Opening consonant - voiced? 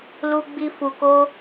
yes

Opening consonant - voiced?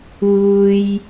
yes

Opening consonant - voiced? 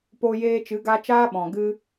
no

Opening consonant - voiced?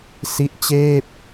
no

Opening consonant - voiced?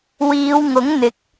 yes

